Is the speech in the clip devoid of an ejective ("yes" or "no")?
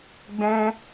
yes